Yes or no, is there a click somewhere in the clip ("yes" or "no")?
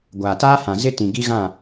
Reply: no